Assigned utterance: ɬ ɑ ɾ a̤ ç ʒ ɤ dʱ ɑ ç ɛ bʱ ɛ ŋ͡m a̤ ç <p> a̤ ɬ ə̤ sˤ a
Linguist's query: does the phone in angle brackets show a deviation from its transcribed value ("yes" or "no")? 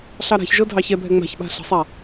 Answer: yes